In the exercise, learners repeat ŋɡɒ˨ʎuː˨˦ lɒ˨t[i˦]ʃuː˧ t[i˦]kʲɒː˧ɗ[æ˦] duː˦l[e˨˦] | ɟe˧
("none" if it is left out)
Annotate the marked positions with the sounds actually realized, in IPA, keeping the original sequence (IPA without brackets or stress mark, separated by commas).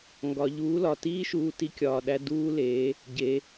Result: iː˦, i˦, æ˦, e˨˦